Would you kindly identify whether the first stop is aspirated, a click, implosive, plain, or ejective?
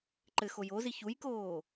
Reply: click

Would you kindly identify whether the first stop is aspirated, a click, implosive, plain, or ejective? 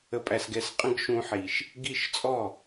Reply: ejective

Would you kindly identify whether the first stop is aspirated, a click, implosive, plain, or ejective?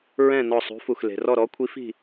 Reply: aspirated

